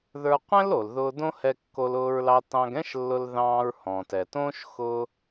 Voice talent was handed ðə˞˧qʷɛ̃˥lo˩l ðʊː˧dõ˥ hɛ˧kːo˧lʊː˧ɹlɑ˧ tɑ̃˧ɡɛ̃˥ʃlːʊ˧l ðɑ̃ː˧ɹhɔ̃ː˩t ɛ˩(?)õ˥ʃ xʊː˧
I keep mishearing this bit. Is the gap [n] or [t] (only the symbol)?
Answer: t